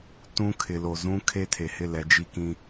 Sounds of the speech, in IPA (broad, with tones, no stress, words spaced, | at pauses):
tũ˦ kʰɪ˨lo˨zũ˦ kʰe˦tʰe˨hɪ˦˨ lɛ˨˦d͡ʒi˦kĩ˦